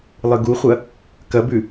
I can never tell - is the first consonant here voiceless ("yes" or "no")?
no